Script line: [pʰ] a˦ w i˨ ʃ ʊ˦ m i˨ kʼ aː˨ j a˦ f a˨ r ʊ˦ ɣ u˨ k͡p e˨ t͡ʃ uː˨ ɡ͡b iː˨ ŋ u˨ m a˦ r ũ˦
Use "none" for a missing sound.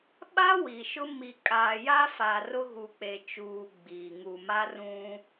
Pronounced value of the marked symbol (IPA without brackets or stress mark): ɓ